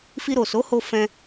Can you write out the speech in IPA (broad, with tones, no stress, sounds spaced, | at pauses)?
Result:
f i˧ ɾ o˨ s o˨˦ h o˧ f ɛ̃˧